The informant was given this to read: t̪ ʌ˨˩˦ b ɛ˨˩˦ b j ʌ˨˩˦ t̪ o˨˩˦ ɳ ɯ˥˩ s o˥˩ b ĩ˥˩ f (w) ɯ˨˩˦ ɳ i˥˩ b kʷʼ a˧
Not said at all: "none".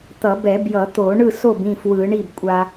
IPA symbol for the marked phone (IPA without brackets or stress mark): w